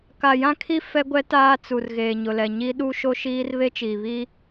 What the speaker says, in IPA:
ka˨jã˦kʰi˦ fɛ˦ɡʷɛ˦ taː˦t͡su˨r ɣeː˨ɲʊ˨lɛ˨ ɲi˦ ɗu˦ʃo˦ʃiː˦r βe˦t͡ʃiː˨βi˦

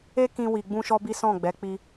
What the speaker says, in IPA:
e˦kĩ˧ wi˧ɡ͡bũ˦ʃɔ˦bi˦ sɔ̃˦˨ɡ͡bɛ˨˦k͡pi˧

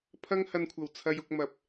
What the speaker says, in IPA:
pʰɐ˥ŋ hɐ˧nkʷʰɐ˨˩w t͡sʰɐ˧jʊ˧k̚mɐ˨p̚

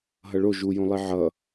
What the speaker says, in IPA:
ɦʌɭo ʒujõlˠi ʕʌ

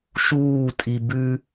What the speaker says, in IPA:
ʃuːtʼi bʉ

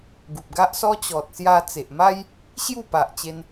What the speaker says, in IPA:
ɡu˨p̚ɡa˦ʔsɔ˦ t͡ɕɔ˨t̚sja˧ t͡se˨ʔma˦j | ɕju˥˧pa˨ʔ t͡ɕe˧n

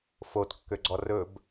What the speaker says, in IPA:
fotkːøɡ͡ǀɔ rɵb

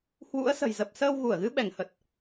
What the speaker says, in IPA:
hwṵ˧˥ə̯sə̤˨˩j zə˨˩p̚səː˧wɣu˧˩ə̯ɣɨ˨˦ ɓɛ˧˩ŋhə˨˩t̚

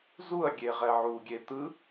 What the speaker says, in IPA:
zuɐ̯ɡʲe ʁɛʕuɡʲe t̪ɯ

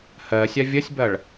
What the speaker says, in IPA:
hɜsʲa vʲɐsʲbɐɭ

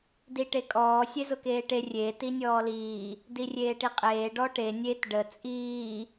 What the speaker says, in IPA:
diʈekʼɔː sʲezʊkeːʈe rʲeːt inʲɔːliː | dirʲeːʈiqʼeː ɖɔʈe nʲet ɖə t͡sʼiː

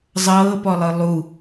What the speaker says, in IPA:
zˤɤːpɔlˠɯ lˠu

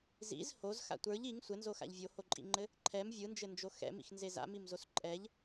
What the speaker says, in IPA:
zḭz hozxa̰ tʷə˞ʎ iŋ sʷɘnzoxa̰ʎ vʲohoǃʼḭŋ͡ǃɘ | ǃʰɛm vʲɯnd͡ʒɘnd͡ʒo xɛ̰mḭxnze za̰mimzos ǃʼɛʎ

